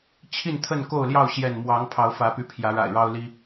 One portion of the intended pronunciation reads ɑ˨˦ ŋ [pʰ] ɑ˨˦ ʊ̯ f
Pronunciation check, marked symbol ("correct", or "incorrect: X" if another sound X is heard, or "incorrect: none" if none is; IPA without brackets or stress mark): correct